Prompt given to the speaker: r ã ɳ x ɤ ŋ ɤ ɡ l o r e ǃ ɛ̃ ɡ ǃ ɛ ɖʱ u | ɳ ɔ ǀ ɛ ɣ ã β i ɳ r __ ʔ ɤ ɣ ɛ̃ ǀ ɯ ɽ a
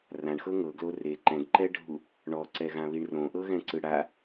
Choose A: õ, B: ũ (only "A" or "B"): A